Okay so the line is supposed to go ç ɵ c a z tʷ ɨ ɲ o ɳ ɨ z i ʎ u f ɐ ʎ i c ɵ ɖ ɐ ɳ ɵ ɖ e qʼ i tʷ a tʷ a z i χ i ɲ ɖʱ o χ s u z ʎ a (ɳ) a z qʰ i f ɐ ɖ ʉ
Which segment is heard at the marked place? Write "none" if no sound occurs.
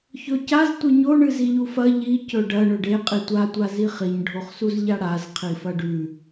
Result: ɽ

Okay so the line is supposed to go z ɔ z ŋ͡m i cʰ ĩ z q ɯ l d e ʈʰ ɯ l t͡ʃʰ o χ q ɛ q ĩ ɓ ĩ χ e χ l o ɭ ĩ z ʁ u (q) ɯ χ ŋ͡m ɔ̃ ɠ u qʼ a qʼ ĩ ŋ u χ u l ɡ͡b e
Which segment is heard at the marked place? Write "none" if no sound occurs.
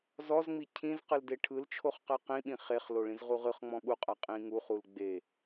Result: ʁ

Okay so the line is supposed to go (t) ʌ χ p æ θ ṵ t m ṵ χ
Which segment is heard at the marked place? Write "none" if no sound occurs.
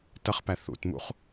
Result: t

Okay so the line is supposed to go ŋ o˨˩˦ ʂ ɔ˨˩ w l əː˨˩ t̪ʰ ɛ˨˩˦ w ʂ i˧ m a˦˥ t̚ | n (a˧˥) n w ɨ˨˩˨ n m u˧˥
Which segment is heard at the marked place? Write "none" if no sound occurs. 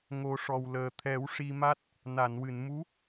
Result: a˨˩˨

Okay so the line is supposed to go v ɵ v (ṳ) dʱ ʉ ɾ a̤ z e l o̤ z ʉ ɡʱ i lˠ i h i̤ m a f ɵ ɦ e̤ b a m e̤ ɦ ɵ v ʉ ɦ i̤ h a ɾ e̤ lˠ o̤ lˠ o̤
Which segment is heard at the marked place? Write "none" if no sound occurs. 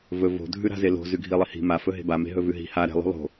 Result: o̤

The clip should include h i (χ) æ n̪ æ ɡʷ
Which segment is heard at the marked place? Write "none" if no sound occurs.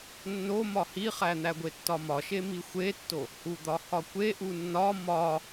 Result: χ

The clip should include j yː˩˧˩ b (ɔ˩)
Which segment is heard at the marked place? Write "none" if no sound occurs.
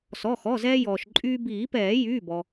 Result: ɔ˩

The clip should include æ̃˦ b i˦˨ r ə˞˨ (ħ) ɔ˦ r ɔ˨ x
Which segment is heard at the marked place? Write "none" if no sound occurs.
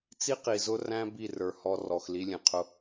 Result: h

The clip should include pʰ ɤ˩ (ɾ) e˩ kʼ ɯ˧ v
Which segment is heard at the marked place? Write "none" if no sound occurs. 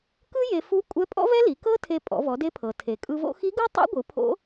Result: tʰ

